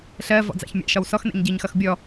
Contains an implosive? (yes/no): no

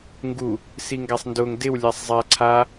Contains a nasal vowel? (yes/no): no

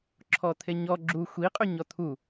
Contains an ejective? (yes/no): yes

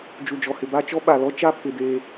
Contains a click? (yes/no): no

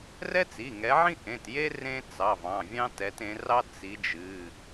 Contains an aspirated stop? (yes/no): no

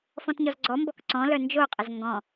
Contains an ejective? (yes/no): yes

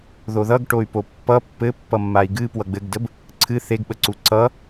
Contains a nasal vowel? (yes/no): no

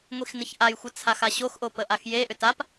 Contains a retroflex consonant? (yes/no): no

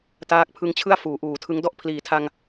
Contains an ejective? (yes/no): no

